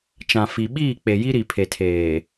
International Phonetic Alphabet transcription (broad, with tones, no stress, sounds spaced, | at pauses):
t͡ʃ ã˨ f i˨ ɓ iː˦˨ k͡p e˨ j i˦ ɾ i˨ pʰ e˨ tʰ eː˨